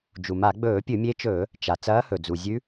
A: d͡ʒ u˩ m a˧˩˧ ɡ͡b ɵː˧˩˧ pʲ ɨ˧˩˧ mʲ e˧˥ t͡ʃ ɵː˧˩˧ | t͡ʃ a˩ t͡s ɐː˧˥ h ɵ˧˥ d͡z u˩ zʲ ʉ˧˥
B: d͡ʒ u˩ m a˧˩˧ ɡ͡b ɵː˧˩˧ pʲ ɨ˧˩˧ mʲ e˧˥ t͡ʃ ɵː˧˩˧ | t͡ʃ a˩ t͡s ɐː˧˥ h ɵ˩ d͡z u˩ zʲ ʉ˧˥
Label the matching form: B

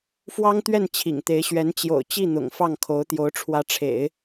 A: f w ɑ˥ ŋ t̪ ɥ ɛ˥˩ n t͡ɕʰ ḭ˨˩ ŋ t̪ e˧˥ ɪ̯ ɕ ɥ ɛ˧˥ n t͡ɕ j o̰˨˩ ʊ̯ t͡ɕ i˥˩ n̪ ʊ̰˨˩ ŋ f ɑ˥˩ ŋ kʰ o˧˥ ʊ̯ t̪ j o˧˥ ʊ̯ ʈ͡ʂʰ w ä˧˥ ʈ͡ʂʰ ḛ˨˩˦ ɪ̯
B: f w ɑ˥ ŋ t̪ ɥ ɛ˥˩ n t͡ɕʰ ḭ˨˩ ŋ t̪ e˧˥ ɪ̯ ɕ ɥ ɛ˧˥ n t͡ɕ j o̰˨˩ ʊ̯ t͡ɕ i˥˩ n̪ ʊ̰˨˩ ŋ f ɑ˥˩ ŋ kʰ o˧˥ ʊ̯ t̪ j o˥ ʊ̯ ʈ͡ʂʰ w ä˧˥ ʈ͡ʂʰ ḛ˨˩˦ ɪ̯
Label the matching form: A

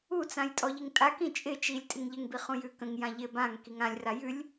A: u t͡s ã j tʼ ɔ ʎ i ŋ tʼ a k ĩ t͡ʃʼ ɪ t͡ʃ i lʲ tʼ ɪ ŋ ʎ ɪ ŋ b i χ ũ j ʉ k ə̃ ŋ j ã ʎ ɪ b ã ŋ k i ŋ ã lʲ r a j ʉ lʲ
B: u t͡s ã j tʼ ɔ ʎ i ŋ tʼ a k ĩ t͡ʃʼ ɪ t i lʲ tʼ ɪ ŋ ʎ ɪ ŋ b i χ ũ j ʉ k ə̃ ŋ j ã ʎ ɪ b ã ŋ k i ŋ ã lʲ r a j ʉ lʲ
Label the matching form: A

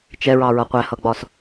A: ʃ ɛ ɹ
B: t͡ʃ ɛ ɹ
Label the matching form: B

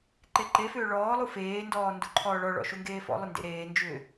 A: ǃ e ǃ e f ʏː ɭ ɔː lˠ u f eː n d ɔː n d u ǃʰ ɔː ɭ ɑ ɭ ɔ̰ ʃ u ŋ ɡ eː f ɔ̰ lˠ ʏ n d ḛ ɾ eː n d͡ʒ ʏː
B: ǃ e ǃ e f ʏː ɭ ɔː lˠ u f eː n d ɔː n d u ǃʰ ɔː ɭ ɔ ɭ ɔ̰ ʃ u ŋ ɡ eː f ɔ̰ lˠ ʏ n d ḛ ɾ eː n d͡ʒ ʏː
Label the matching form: B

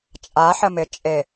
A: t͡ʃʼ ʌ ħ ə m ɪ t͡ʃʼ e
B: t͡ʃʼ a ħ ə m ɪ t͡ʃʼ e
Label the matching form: B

